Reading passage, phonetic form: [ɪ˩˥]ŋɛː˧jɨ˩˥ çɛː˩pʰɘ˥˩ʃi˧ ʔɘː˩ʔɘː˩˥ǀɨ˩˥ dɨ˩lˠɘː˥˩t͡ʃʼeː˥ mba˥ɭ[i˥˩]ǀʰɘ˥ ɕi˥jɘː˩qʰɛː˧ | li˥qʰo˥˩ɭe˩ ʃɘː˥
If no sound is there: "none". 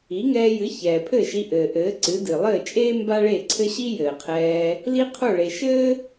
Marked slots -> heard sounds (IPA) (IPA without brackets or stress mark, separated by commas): i˩˥, e˥˩